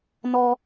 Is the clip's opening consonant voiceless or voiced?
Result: voiced